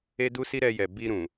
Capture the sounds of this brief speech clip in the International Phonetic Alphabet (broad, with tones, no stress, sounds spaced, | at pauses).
e˦ d u˦ s i˦ ɾ ɛ˧ j ɛ˨ b i˧ ɾ ũ˨